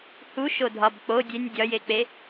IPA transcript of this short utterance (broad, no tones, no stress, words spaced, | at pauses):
huʃodʱɒb k͡po dʲenʲ dʲɒjek͡pe